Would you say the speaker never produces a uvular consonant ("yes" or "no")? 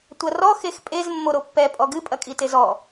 yes